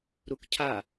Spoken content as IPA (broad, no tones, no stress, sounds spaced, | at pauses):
ɾ u k cʰ a